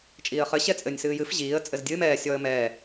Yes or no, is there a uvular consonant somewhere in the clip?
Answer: yes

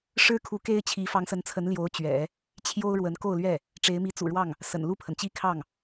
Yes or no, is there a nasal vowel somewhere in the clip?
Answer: no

